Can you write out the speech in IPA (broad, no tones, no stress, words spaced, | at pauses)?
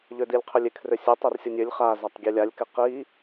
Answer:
ʎødilʲqʰølʲɪ kʰrøsʲetˤ œrsʲʌnʲølʲ χa zatˤɡʲelʲalʲ kɪqi